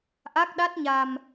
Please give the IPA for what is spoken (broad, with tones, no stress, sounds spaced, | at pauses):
ʔ a˦˥ k̚ ɗ a˦˥ t̚ ɲ a˧ m